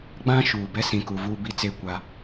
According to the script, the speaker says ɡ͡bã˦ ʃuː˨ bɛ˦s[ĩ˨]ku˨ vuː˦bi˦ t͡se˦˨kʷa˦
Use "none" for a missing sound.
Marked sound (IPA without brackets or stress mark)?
ĩ˨